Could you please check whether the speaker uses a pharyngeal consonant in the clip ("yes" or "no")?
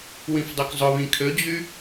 no